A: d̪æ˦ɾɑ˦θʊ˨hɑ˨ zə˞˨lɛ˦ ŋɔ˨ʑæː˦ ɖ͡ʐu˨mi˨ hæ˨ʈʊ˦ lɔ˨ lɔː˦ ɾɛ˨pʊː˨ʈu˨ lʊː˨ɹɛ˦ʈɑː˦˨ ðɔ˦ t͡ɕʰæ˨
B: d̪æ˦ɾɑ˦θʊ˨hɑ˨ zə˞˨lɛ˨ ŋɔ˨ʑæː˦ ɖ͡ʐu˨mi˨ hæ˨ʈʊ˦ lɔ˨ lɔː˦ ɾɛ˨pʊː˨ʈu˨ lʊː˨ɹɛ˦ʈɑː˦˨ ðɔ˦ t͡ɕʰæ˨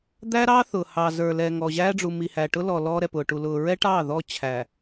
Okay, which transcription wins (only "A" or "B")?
B